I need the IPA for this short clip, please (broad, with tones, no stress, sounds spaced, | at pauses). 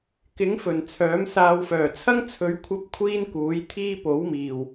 k ɪ˨˥ ŋ f ɵ˨˩ n t͡sʰ œː˨˥ m s aː˧ w f œː˨˩ t͡sʰ ɐ˥ ŋ t͡sʰ ɵ˨˧ ɥ kʷʰ ɐ˧ p̚ kʷʰ iː˥ n k uː˨˥ j t̪ʰ iː˥ p o˨˥ w m iː˨˩ w